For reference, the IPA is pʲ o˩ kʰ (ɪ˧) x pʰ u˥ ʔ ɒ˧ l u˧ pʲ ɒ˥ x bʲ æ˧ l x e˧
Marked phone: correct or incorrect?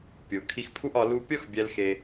incorrect: i˧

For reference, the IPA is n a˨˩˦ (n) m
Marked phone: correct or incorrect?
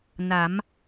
incorrect: none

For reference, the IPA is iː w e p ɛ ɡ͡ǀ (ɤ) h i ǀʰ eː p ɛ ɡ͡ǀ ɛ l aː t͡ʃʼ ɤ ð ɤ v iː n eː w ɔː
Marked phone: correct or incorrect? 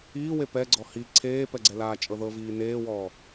incorrect: ɔ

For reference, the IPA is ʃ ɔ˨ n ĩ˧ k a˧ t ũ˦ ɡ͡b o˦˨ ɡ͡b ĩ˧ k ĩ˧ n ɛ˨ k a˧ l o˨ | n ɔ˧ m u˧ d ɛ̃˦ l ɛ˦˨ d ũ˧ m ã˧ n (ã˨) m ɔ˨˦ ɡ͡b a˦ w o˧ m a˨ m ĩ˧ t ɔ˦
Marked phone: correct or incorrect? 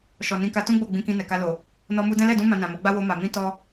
correct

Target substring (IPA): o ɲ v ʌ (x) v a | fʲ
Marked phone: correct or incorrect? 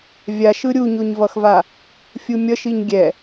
correct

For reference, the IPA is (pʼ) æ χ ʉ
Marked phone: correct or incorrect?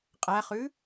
incorrect: qʼ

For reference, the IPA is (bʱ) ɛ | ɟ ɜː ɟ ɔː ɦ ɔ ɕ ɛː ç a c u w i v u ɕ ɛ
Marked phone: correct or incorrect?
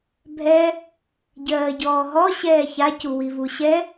correct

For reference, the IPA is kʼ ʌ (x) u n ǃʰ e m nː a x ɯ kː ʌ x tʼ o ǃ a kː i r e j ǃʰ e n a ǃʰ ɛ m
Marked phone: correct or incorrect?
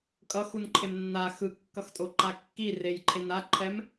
correct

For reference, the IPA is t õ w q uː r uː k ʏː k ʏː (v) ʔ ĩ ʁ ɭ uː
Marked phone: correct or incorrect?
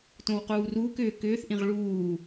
incorrect: θ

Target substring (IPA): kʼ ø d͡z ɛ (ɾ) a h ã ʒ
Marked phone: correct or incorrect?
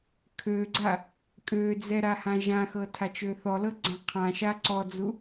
correct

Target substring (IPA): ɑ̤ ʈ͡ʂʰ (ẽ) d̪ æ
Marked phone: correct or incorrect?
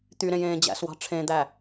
correct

